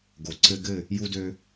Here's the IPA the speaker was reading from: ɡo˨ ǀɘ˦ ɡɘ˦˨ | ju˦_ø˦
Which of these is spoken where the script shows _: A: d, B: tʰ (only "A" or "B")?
A